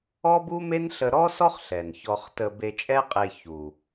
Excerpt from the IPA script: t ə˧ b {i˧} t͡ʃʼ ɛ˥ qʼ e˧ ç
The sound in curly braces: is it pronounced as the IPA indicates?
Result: no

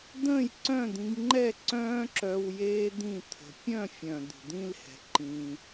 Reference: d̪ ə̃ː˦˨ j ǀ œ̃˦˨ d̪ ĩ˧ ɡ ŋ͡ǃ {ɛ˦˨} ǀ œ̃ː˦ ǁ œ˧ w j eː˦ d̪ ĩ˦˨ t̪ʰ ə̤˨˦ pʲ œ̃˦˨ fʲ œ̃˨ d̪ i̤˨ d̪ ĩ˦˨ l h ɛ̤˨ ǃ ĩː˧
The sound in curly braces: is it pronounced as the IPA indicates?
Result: yes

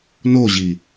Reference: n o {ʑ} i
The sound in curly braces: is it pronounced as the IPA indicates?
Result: yes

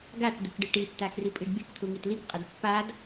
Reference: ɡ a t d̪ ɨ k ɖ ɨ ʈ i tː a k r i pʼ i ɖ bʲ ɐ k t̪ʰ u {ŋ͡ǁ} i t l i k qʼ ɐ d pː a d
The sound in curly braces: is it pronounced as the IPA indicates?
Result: no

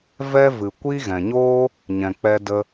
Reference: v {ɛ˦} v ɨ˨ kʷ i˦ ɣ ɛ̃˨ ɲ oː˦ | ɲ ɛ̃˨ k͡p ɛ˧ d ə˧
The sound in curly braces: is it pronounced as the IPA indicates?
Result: yes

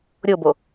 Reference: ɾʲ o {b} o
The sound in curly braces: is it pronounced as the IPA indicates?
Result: yes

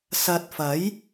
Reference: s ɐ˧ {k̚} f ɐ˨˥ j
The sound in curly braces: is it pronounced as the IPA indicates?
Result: no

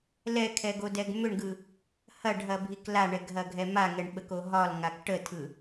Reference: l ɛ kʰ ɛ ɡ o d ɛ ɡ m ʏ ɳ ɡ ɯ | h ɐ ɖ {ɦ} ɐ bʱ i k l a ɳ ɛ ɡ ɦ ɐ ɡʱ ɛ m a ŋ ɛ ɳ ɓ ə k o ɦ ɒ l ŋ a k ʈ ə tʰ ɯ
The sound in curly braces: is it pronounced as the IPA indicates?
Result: yes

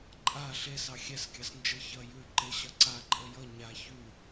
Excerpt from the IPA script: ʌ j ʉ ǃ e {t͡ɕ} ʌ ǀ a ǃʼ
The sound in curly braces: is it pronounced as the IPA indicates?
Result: no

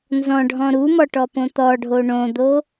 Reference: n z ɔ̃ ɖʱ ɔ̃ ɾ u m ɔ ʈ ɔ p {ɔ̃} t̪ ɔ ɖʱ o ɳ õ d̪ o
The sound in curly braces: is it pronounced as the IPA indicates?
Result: no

